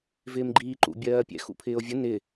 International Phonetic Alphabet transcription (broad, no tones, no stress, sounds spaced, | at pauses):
v ɪː m ɡ͡ǃ iː ǃ ṵ bʲ ɜː pʲ ɛ̰ x ṵ pʰ ɪː o̯ vʲ ə n ɪ